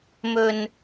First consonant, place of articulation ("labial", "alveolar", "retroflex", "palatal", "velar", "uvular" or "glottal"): labial